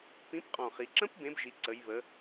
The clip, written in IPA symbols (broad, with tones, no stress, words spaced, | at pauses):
pĩ˨˥pqʼɔ̃˨˩χi˩˧ǁə̃˦˥p bẽ˨˥bʒi˩˧ǀə˩˧jβə˩˧